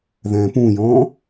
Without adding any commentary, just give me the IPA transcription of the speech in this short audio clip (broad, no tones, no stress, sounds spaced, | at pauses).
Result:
ð ɛ̃ː p ũ j ɔ̃ː